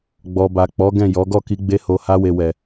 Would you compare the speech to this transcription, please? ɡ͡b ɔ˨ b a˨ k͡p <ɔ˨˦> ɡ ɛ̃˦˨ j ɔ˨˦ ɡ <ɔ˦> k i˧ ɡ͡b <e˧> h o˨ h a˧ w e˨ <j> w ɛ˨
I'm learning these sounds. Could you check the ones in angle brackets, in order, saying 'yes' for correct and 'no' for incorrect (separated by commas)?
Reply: yes, no, yes, no